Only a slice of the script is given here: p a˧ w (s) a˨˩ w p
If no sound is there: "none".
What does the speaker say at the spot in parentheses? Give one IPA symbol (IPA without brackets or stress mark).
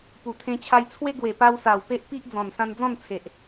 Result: s